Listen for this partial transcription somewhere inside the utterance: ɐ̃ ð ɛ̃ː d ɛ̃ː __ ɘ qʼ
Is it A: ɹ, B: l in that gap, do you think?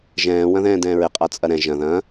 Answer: A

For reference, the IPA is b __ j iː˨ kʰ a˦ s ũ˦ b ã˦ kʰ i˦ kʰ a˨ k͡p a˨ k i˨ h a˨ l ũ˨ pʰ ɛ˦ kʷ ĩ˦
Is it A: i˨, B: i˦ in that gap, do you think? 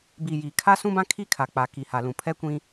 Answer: A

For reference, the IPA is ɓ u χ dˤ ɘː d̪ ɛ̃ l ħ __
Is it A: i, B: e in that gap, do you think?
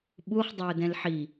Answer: A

